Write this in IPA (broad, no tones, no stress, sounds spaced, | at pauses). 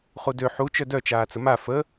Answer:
χ u d ø ħ u t͡ʃ œ d œ t͡ʃ aː t͡s ə m a f ə